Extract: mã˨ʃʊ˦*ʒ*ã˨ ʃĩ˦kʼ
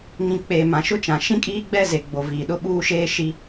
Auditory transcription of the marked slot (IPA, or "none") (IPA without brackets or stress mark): t͡ʃ